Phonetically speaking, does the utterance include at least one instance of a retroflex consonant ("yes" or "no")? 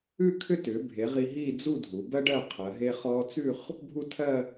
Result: yes